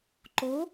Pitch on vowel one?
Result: rising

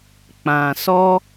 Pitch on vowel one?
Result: low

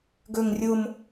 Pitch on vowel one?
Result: low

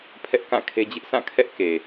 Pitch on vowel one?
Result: high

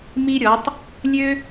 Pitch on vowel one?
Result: high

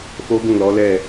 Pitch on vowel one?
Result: high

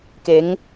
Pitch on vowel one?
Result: rising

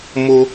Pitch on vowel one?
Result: high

